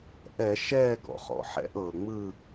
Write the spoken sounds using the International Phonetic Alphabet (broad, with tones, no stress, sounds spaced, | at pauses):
ʔ ɛ˧˩˧ ʃ ɛː˥˨ ɡ ɔ̰˩ χ ɔ̰˩ ħ ɛ̰˧˩˧ ʔ ɤː˩ ŋ͡m ɯ˥˨